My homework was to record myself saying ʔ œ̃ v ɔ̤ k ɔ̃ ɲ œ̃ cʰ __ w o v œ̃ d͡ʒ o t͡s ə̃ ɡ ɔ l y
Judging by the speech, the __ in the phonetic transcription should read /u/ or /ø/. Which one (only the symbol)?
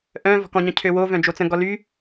ø